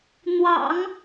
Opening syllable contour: low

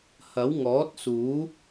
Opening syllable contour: rising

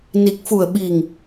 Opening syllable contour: low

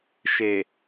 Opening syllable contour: low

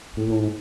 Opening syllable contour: low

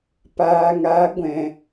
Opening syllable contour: low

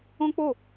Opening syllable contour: high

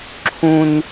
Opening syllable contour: low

